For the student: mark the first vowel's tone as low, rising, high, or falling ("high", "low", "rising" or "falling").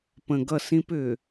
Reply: low